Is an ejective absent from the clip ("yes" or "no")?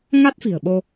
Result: yes